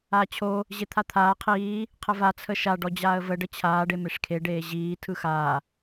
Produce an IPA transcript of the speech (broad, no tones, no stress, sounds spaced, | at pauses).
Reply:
aː t͡ɕʰ o | ʑ e t̪ʰ a t̪ʰ aː qʰ iː | qʰ ə v a t͡sʰ ə ʃ a ɖ ɔ d͡ʑ aː ə̯ v ə ɖ ə t͡ɕʰ aː ɖ e m e ʂ kʰ e ɖ eː ʑ iː tʰ ɯ x aː